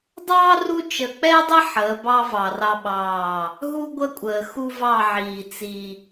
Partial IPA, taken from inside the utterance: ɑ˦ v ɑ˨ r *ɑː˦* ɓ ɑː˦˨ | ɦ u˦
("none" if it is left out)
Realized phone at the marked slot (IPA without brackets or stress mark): ɑ˦